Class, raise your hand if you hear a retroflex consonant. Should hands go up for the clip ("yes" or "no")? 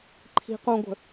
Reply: no